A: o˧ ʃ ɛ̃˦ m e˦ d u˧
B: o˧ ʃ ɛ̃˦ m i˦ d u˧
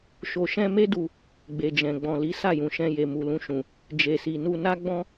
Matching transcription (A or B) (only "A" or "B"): A